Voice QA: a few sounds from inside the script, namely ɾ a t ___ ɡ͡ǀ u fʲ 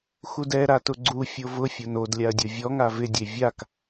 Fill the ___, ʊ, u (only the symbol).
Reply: ʊ